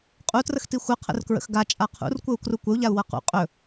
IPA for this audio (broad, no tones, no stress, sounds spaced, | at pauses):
qʼ u t r ə x t i xʷ ə qʰ ə̰ r k ɹ ə̰ x ɡ a t͡ʃʼ a qʰ ṵ r kʷ ə u̯ k r u kʷ ə u̯ ʎ a u̯ w ɤ q ṵ qʼ ɵ